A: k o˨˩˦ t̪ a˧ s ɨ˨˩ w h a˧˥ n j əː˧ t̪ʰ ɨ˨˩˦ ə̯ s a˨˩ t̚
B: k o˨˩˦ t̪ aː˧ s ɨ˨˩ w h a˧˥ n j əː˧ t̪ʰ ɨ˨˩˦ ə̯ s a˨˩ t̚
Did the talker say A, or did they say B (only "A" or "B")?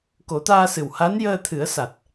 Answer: B